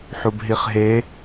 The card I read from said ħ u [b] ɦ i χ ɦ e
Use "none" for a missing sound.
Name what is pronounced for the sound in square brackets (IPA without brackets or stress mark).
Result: b